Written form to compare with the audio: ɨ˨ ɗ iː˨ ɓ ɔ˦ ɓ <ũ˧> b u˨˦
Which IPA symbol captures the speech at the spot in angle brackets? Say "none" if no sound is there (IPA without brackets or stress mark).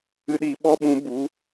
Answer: ũ˨˦